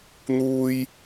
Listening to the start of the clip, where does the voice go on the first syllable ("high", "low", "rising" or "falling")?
high